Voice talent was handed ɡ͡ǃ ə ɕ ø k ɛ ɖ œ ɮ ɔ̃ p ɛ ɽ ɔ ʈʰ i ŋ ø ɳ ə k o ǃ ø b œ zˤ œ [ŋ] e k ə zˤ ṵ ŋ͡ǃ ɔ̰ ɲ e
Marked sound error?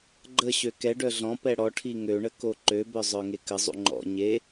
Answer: no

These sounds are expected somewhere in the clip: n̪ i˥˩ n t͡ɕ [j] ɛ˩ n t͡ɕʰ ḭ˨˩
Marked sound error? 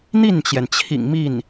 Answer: no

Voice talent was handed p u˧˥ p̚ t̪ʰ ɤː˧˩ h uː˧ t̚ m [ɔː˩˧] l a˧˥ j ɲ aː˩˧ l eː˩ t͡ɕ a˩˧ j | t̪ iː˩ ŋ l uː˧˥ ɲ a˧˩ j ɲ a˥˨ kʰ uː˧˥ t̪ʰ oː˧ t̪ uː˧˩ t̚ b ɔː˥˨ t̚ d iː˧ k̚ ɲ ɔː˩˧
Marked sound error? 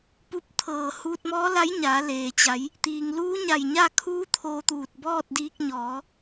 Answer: yes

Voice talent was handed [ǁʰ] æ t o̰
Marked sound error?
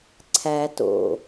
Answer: yes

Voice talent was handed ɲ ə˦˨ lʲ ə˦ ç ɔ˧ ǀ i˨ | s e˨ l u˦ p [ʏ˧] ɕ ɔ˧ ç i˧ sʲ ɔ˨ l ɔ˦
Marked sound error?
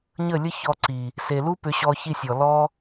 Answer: no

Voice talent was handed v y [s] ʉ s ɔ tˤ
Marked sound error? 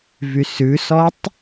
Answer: no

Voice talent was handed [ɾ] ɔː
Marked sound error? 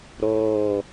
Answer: no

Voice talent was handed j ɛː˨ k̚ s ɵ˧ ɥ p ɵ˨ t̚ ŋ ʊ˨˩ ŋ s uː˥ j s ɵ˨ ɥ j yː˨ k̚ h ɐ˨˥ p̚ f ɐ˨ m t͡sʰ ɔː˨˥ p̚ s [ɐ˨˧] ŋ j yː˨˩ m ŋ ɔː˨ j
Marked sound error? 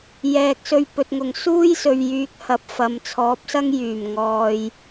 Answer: yes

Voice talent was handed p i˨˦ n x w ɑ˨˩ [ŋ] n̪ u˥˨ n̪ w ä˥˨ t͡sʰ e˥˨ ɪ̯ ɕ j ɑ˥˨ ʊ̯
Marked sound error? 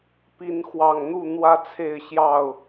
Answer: no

